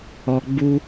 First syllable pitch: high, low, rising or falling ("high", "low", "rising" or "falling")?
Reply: low